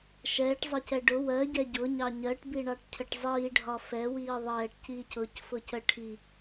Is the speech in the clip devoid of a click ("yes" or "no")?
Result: yes